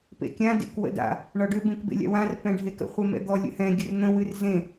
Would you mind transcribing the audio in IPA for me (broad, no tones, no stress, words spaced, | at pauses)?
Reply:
pḛkʲã dḛkwə̰da̰ | ɳɒɖʏ bẽkbḛlʲa̰wãr pɛ̃ɖʱekə̰ χʷɛmɛ̰d̪ɔ lʲə̰hɛ̃ ɡʲərn̪ə̃ wɨrzẽ